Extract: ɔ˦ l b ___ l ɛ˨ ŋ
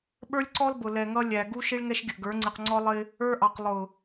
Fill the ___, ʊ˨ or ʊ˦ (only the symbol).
ʊ˨